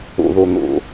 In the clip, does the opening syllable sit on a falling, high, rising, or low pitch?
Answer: low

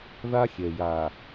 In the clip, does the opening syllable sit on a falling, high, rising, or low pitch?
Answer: high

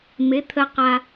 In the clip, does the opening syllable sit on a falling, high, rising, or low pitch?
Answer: rising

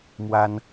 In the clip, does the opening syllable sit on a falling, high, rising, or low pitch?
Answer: high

